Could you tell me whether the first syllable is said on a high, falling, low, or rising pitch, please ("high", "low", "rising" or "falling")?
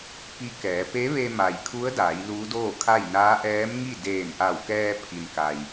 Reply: rising